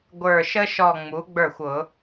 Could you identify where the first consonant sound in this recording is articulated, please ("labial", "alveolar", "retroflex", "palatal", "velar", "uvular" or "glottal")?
velar